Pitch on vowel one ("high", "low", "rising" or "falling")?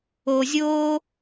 low